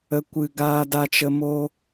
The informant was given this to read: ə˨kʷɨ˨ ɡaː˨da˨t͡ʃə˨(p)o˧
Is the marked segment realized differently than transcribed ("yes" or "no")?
yes